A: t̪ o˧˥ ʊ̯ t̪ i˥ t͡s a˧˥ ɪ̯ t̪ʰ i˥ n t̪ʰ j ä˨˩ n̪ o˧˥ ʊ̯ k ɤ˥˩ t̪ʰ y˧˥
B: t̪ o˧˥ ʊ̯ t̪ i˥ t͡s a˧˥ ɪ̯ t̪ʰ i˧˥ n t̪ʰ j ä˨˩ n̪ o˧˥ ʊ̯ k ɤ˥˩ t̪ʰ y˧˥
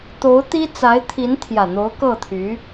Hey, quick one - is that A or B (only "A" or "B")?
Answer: B